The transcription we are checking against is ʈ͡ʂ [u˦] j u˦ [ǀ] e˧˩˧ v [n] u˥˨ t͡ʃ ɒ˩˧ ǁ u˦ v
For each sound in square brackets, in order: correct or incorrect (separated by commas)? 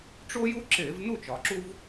incorrect, incorrect, correct